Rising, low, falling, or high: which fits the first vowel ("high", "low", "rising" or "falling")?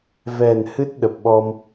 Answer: low